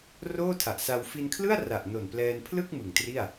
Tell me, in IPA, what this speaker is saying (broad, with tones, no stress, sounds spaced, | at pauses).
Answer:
r oː˥˩ tʰ a˨˩ ʔ s a˧ w f i˧ n kʰ l ɯ˥˩ a̯ r a˨˩ ʔ n o˨˩ n p l ɛː˧ n pʰ l ɯ˥˩ k̚ m ɯ˨˩ ŋ t r i˥˩ a̯